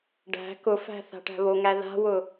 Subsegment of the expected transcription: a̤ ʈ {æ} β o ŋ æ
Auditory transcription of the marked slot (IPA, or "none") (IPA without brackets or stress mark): æ̤